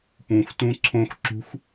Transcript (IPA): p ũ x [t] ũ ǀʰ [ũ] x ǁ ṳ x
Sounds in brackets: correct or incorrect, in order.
correct, incorrect: õ

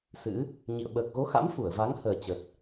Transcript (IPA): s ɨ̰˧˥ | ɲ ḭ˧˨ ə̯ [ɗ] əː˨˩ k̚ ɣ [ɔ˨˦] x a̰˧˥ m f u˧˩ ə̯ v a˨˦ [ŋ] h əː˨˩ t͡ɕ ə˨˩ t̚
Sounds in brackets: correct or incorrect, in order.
incorrect: ɓ, incorrect: o˨˦, correct

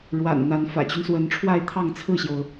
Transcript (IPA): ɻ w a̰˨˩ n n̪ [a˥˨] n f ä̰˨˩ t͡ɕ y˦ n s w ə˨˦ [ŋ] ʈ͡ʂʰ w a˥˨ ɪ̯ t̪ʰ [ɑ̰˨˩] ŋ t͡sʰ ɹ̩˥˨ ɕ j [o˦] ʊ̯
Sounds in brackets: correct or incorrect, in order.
incorrect: a˨˦, incorrect: n, incorrect: ɑ˥˨, incorrect: o˩

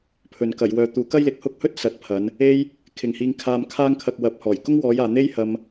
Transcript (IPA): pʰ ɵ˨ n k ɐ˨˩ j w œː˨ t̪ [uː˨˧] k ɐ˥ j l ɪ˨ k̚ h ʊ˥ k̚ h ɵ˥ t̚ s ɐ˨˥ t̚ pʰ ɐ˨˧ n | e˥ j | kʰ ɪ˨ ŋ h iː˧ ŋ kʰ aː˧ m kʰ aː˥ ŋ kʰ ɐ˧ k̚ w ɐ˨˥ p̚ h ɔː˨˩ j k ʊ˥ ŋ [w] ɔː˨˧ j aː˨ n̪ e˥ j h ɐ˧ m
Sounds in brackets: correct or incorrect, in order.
correct, correct

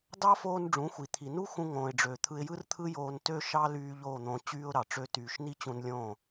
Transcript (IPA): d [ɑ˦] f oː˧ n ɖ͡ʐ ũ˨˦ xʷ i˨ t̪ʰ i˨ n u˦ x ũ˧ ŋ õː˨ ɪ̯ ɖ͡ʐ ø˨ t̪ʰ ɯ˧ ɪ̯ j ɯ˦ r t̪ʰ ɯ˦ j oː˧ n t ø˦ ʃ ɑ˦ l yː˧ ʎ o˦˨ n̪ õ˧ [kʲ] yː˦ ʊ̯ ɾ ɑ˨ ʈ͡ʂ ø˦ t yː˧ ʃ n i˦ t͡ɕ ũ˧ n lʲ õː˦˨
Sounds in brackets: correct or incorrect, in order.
correct, incorrect: t͡ɕ

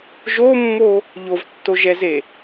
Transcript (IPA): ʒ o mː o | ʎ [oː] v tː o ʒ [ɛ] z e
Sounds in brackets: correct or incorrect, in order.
incorrect: o, correct

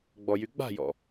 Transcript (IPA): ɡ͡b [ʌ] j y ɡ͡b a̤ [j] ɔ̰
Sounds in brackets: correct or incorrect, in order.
incorrect: ɔ, correct

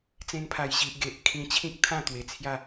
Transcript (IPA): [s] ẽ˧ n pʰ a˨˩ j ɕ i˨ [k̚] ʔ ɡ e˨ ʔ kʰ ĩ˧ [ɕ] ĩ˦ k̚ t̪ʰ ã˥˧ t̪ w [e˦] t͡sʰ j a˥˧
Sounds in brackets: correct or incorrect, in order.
incorrect: t͡s, incorrect: none, incorrect: t͡ɕʰ, incorrect: e˨˩

